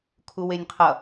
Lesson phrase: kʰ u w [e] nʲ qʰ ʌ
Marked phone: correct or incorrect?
correct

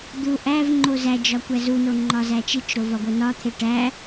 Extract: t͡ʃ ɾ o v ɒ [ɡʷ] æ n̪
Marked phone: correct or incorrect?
correct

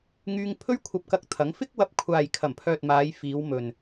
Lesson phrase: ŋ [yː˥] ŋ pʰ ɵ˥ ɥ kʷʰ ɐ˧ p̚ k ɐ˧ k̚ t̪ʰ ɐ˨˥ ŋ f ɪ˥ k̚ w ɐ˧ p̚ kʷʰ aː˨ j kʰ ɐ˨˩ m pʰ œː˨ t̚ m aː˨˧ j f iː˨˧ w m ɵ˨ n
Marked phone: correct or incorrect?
incorrect: yː˧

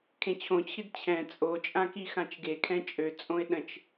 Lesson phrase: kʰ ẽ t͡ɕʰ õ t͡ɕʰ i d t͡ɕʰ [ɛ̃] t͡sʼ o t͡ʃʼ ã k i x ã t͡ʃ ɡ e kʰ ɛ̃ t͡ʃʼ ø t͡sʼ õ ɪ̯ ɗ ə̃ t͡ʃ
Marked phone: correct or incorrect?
correct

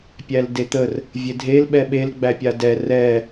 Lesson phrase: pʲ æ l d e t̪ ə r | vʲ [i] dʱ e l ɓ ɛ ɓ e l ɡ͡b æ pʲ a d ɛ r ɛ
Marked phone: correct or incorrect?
incorrect: e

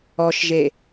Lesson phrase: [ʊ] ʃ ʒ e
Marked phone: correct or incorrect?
incorrect: ɔ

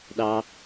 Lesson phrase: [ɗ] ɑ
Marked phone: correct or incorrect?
correct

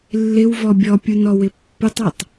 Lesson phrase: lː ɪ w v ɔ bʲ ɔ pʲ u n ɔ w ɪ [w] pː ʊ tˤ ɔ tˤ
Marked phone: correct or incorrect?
incorrect: none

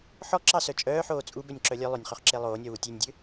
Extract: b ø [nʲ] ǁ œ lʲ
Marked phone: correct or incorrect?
correct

